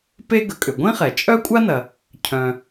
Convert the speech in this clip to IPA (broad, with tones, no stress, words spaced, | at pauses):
pe˥ɡə˩kʼʏ˩ ɡʷĩ˥χɛ˩ t͡ʃʼœ˥kʷʼa˥nɐ˩ | cʰœ̃˩